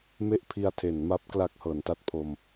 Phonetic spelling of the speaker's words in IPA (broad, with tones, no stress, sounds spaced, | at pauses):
m e˥˩ ʔ pʰ i˧ a̯ tʰ e˩˦ n m a˦˥ p̚ k l a˥˩ k̚ h ɤː˩˦ n t a˥˩ t̚ pʰ o˧ m